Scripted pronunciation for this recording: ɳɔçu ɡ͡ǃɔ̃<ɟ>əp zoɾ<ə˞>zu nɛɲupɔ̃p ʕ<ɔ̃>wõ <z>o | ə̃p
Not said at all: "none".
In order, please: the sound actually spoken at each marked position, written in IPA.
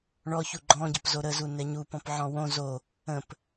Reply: ɟ, ə, ɔ̃, z

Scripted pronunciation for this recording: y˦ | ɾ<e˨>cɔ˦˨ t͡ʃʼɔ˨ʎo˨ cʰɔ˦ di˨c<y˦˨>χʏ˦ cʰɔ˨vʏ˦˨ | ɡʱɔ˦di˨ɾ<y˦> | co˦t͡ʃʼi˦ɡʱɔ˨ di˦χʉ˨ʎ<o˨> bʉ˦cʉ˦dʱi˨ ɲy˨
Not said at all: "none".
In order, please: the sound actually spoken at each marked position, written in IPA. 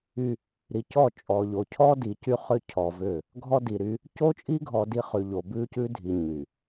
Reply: i˨, y˦, y˦, o˨

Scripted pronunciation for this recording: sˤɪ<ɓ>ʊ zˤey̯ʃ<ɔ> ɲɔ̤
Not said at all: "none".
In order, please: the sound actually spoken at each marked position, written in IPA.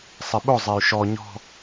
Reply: ɓ, ɔ

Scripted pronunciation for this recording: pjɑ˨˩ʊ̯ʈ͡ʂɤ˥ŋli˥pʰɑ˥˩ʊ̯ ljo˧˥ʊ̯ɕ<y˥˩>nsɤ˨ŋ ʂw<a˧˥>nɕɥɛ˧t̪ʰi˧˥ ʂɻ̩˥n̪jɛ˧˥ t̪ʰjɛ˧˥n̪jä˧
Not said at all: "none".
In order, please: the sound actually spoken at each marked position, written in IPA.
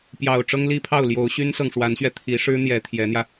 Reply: y˥, a˧˥

